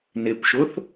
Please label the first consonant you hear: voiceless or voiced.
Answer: voiced